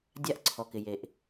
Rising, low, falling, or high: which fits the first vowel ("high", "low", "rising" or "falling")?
high